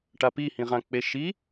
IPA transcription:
ʈ a p i h ĩ ʁ ã k͡p e ʃ i

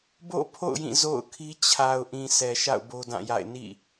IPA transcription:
b o̰˦˨ pʰ o̰˦˨ ʊ̯ j ĩ˦˨ z o̰˦˨ ʊ̯ kʰ i˦ t͡ɕʰ a˨ ʊ̯ ʔ ĩ˨ s ɛ˨ ʃ a̰˦˨ ʊ̯ b o˦ d ã˦˨ j a̰˦˨ ɪ̯ n ḭ˦˨

